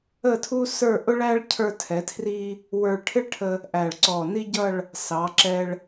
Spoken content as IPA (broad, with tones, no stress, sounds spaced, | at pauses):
ə˥˧ tʰ u˥ s ə˞˥˧ ʔ ʊ˥ ɭ æ˥ ɭ cʰ ə˞˧ tʰ ɛ˩˧ tʰ r i˧ | w ə˞˧ ɭ ʈʰ ɪ˥ ɭ ʈʰ ə˧ | ʔ æ˧˩ ɭ ǀ ɔ˧˩ n i˥ ɟ ʌ˥˧ ɭ | s ɑ˩˧ ǁ ɛ˧ ɭ